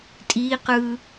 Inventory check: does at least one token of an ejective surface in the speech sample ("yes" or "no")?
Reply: yes